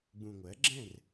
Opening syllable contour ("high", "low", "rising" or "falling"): low